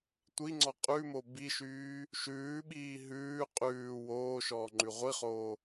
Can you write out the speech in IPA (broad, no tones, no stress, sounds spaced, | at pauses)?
tʷ i ŋ͡ǀ ɔ qʼ ʉ m o b i ʃ yː | ʃ ʉː ɓ iː ɦ ʉː qʼ ʉː w oː ʃ ɔː ŋ͡ǃ ʉ ʁʷ i χ oː